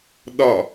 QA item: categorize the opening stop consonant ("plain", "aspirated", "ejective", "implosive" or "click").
implosive